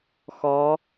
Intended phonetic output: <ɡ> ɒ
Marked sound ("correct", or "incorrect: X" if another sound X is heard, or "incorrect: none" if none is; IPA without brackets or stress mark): incorrect: x